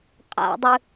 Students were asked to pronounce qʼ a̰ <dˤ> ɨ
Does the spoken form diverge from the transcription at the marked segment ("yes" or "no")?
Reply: no